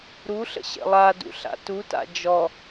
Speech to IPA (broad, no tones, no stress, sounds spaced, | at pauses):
ɾ u ɬ ə̰ ɕ ə̰ lˠ a d ṵ ɬ a̰ t u t a̰ d͡ʒ ɔ